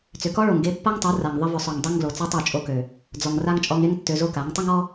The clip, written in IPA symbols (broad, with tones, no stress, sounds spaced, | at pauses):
t͡s ʏ˨ k ɔ˦ ɭ o˨ ŋ ɡ e˧ pː a˦ ŋ tˤ o˨˦ r a˨ ŋ ðˤ ə˧ v ʏ˨ sˤ ø˨ ŋ dˤ e˦ ŋ ɡ l o˨ t͡s ɔ˦ tˤ o˦˨ t͡ʃʼ o˧ k ø˨ | d͡z ɔ˨ ŋ r a˦ ŋ t͡ʃʼ ɔ˧ ŋ e˦ ŋ tː ø˧ z o˦ k a˨˦ ŋ tˤ ə˦ ŋ ɔ˦